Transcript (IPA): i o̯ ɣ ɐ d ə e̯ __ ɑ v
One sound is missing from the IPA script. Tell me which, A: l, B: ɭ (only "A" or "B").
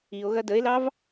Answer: A